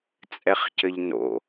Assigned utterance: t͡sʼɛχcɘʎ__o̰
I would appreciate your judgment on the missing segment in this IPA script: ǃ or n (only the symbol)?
n